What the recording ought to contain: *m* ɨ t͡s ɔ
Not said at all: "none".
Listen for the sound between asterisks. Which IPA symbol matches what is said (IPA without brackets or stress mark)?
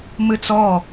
m